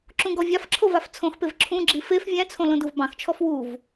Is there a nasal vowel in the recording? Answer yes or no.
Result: yes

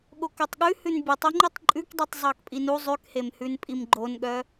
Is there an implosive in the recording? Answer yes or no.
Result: yes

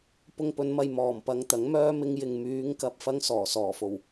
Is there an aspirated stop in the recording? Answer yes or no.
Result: no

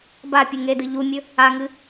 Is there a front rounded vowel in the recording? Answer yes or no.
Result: no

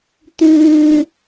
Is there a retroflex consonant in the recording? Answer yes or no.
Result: no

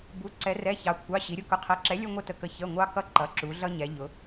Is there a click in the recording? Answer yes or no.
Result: yes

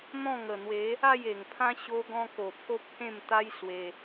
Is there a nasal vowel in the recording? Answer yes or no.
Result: yes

